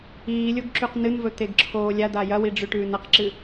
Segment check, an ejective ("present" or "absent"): absent